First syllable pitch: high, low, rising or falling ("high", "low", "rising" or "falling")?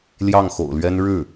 falling